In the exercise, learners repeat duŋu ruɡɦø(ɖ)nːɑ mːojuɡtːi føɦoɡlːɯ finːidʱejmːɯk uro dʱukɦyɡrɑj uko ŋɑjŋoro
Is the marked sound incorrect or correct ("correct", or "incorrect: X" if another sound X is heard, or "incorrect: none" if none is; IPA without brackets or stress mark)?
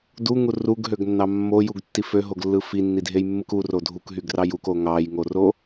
incorrect: ɡ